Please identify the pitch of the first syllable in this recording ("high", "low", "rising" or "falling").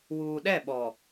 low